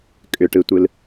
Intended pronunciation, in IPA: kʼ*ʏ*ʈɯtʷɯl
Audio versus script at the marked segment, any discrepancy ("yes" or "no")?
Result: no